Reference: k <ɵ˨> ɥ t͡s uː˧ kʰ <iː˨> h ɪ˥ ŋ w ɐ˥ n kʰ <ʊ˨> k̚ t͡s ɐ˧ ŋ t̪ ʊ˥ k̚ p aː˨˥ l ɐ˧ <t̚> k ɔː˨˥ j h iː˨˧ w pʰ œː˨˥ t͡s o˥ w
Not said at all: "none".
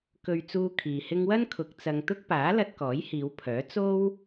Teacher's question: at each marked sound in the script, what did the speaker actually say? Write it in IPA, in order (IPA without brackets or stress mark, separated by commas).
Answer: ɵ˨, iː˨, ʊ˨, t̚